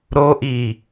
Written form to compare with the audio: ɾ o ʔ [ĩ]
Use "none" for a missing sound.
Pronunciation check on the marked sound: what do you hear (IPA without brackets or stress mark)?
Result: i